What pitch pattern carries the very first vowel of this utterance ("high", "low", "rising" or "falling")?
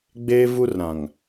high